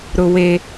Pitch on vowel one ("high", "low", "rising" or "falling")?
high